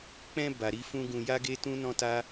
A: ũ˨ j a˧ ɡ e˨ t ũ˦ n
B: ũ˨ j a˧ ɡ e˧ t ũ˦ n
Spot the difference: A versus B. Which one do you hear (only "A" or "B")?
B